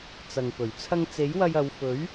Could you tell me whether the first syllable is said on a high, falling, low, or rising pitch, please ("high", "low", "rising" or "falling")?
low